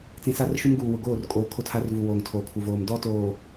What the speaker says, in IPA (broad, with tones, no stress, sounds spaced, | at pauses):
t͡s ĩ˨ s a˦ r ʃ u˦ m ɡ uː˨ w ʊ˨ ɡ oː˦˨ r kʼ oː˨ kʰ o˦ tʰ a˦ r v u˨ w oː˨ ŋ tʰ oː˨ kʰ u˨ v oː˨ m d ɔ˦ t oː˨